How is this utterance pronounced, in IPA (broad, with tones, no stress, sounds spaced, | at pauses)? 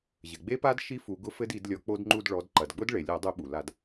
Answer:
ʑ ɘ˩ ɡ͡b e˦˥ p a˦˥ d ʃ i˦˥ f u˨˦ ɡ ʊ˦˥ f ɘ˦˥ d i˧˩˧ d lʲ ɔ˨˦ k͡p o˦˥ d ŋ͡ǃ u˥˧ d ɭ ɔ˨˦ d ǃ ɐ˩ d ɡ͡b ʊ˦˥ d ɭ e˩ lʲ ɔ˧˩˧ dˤ u˧˩˧ ɓ u˩ l a˧˩˧ d